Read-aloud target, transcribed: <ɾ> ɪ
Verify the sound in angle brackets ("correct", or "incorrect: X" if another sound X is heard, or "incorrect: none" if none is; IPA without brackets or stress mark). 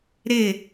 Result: correct